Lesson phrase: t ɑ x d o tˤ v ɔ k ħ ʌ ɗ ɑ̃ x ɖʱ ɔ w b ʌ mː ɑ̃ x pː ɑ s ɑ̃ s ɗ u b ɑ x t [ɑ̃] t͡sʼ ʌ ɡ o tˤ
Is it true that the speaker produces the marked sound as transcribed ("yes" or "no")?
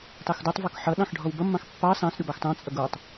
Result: yes